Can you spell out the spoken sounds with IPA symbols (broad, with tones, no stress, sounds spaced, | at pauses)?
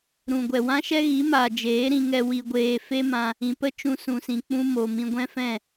ɾ ũ˨ ɡʷ ɛ˨ w ã˦ ʃ ɛ˦ ɣ i˨˦ m aː˨ d͡ʒ eː˨˦ ɾ ĩ˧ ŋ ɛ˧ w i˧ ɡʷ eː˧ f e˦ m ã˧ | ĩ˨ p ə˦ t͡ʃ ũ˧ s ũ˨ s ĩ˨ k͡p ũ˧ m o˨ m ĩ˧ ɡʷ ɛ̃˦ f ɛ̃˦˨